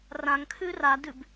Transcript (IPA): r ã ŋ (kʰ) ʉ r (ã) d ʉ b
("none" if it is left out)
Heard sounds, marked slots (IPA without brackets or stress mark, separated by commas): kʰ, a